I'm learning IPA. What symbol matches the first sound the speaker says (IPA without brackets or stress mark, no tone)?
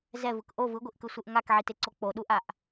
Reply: z